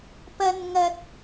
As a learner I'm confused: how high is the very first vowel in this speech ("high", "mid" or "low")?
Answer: low